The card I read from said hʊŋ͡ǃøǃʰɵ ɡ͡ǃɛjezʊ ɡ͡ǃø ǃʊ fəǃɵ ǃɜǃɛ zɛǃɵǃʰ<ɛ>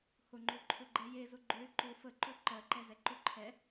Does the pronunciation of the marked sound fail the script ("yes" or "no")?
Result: no